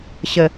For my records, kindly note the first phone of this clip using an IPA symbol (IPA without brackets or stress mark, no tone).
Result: ɕ